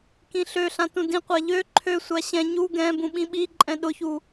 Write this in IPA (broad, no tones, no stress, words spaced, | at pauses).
kĩɬøɬã tũdĩqʷa ʎø ǃʰøsʷa ɕɛ̃ ɲu ɡɛ̃ bũɓĩɓiǃʼɛ̃ ɗʊçu